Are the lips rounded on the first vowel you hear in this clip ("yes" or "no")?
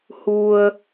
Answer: yes